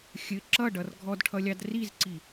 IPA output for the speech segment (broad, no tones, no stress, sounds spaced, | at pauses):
xʲ ɘ ǁ ʌ ɖ ʌ r ɡʱ ɔ d ʈʰ ʌ lʲ ɑ d r i z ǀ i